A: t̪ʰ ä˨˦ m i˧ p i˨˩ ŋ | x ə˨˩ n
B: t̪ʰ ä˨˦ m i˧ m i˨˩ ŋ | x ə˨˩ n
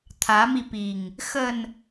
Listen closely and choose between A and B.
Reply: A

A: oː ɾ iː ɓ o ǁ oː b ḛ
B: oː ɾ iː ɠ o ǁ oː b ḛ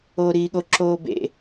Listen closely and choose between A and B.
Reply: B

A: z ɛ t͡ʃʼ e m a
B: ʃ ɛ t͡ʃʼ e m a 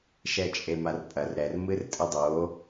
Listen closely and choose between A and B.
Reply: B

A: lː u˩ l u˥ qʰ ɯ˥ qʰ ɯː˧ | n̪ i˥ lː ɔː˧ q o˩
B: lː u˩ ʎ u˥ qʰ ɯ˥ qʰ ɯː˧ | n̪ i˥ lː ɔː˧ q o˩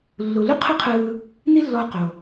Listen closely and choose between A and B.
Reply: A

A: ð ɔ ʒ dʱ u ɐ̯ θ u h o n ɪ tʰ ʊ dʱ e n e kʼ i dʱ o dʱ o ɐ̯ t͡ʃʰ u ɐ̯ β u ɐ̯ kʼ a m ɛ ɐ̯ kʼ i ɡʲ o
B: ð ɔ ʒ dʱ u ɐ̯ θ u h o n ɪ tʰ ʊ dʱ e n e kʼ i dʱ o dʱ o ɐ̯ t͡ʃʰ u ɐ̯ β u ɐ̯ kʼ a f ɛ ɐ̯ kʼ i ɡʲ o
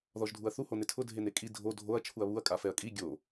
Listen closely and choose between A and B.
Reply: B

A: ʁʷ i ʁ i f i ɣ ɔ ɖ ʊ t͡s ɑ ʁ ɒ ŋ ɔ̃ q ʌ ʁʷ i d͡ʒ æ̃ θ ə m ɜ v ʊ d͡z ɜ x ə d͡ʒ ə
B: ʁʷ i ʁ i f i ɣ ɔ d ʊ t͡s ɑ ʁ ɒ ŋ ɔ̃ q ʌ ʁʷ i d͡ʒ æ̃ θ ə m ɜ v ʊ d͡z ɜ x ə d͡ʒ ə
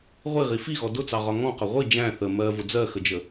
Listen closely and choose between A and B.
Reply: B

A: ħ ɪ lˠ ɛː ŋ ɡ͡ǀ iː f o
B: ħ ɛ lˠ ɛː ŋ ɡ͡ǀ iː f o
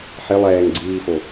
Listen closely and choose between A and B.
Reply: A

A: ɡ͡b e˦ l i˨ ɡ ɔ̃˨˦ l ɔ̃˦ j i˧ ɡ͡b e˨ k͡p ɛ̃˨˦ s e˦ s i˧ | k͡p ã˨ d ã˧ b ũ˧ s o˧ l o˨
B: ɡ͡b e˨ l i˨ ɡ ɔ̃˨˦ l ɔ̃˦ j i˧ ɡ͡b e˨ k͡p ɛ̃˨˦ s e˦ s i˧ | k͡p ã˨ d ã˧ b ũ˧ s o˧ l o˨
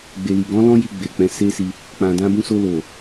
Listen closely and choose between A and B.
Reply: B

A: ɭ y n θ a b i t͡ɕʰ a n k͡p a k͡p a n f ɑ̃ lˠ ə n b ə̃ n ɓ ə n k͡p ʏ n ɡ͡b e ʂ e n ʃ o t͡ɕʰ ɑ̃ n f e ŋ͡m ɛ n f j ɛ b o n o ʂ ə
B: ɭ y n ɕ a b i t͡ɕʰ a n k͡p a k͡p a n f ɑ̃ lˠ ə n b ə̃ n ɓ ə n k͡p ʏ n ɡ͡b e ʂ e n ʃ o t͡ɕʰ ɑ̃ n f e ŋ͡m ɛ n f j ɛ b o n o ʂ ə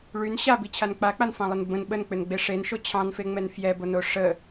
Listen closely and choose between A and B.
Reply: B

